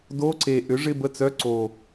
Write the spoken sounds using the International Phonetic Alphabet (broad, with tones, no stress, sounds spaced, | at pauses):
d o˧˥˧ ǀ e˨˩ ʔ ʏ˨˥ ʐ ɪ˧˥˧ b ə˦˨ t͡s œ˧˥˧ ǀ o˨˩